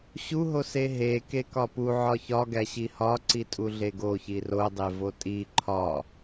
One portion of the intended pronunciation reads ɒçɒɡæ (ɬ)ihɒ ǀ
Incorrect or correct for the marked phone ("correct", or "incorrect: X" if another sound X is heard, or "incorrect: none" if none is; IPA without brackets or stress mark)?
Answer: incorrect: ɕ